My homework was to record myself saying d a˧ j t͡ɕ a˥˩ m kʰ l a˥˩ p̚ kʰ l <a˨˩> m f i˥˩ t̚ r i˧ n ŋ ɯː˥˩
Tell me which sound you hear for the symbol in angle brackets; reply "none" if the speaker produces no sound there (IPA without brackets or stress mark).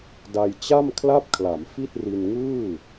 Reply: a˩˦